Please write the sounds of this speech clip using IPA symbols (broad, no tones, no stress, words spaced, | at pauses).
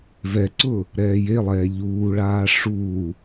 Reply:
vɛǀʊː | ɾɛːjelˠɛː ʎuːɭaː ʂuː